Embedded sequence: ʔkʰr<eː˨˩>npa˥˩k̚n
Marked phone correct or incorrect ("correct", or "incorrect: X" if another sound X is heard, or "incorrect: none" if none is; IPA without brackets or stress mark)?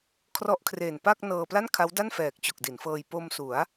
correct